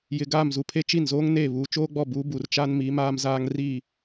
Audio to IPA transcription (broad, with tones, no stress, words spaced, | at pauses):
jɪ˨ɡaː˦˨mzu˨pʰe˦ t͡ʃi˦˨nzoː˦ŋneː˦˨ βuː˨t͡ʃoː˦ɡ͡bɔ˦˨buː˨˦ bu˨rt͡ʃa˦nmi˨˦ maː˦mzaː˦ŋ ri˦˨